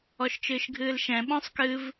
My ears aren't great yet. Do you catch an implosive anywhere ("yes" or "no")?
yes